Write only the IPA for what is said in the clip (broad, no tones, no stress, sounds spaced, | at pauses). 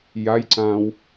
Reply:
j a j ǀ ãː w